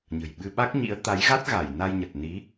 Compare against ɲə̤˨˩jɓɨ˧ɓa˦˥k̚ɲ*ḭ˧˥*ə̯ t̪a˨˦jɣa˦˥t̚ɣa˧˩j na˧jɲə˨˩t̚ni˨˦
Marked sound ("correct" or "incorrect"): correct